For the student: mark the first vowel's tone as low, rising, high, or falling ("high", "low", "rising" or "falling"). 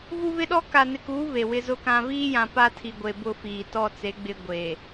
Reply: high